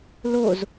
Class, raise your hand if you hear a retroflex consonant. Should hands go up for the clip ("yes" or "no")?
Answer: no